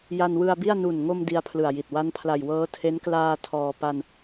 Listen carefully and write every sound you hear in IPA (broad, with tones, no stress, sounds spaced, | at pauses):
j a˧ n w ɯ˧ a̯ b i˥˩ a̯ n u˨˩ n ŋ o˧ m d i˦˥ a̯ pʰ l ɯ˨˩ a̯ j i˨˩ t̚ w a˦˥ n pʰ l a˨˩ j w ɤː˦˥ tʰ e˦˥ n k l aː˧ tʰ ɔː˧ p a˧ n